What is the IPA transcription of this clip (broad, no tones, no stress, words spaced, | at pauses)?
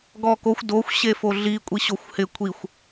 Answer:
ɡɔkoxʷ doxʷ ɕefoɮi kʷʼiɕoxʷhɪ kʷʰixʷ